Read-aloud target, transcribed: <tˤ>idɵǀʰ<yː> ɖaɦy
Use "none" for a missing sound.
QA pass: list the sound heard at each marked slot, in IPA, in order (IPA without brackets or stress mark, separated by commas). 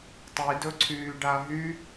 tˤ, yː